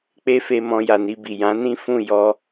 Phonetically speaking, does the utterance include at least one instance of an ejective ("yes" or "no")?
no